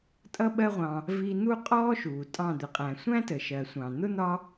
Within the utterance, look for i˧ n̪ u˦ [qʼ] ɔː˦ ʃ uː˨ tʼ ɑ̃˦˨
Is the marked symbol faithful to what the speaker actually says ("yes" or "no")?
yes